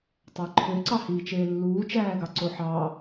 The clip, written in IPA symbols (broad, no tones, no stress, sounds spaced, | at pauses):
tˤ ɑ ǃʰ ø ǀ ɑ h iː t͡ʃ eː lː uː t͡ʃ æː ɡ ɑ ǀ o ħ ɑ